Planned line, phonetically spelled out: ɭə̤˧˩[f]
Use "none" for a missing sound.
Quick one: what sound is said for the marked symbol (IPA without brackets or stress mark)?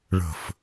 f